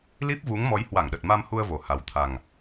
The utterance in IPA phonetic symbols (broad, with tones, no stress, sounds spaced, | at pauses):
l i˦˥ p̚ v u˨˦ ŋ m ɔ˨˦ j h w a˧˩ ŋ ɗ ə˨˩ t̚ m a˧ m h u˧ ə̯ v o˨˩ h a˨˩ w t̪ʰ a˨˩ ŋ